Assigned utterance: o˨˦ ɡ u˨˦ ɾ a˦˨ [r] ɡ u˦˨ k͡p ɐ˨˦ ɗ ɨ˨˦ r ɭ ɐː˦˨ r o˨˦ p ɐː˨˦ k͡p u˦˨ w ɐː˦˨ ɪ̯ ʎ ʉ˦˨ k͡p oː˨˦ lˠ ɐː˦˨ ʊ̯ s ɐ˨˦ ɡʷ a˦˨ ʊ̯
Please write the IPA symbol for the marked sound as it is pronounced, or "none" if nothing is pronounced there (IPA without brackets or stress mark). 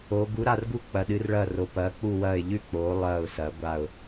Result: r